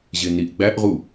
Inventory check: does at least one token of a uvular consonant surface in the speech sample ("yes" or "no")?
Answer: yes